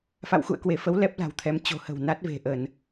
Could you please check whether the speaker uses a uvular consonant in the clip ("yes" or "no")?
no